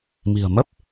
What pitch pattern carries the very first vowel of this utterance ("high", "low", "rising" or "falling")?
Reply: low